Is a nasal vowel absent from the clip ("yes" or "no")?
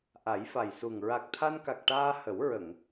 yes